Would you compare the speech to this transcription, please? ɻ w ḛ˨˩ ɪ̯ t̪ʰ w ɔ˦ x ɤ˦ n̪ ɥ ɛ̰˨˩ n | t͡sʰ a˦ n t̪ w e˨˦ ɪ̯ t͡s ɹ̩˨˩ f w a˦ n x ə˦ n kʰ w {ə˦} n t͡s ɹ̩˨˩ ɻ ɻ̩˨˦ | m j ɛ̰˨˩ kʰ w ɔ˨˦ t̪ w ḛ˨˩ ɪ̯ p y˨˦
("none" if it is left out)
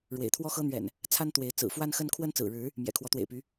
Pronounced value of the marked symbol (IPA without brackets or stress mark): ə˦